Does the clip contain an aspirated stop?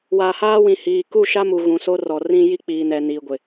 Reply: no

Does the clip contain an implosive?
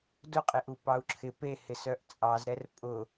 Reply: no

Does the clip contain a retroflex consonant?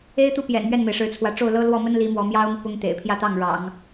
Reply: yes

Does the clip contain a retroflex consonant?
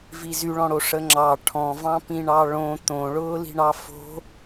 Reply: yes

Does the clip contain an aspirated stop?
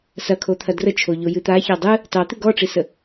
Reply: yes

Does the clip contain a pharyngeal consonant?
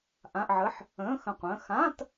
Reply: yes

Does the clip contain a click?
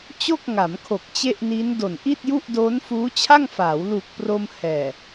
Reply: no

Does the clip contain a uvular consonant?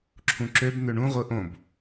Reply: yes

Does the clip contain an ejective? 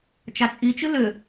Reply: yes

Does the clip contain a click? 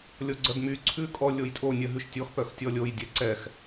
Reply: yes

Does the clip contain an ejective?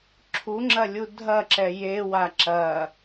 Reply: no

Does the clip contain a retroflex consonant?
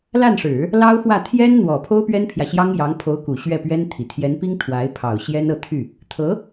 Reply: yes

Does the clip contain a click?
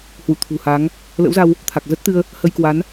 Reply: no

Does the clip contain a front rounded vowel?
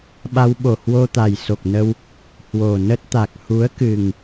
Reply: no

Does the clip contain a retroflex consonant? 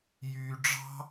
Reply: yes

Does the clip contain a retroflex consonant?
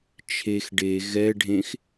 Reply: yes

